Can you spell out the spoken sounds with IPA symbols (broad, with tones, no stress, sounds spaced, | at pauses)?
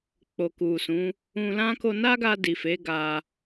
k͡p o˨ k u˨ s ũ˨˦ | ũ˧ l ã˦ k o˧ n a˦ ɡ a˧ d i˨ f e˨˦ ɡ a˧